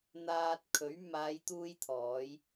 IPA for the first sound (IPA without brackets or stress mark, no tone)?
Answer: n̪